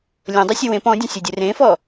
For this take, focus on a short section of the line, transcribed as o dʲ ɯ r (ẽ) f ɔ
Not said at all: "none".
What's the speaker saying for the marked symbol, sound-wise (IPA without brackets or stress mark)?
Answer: ẽ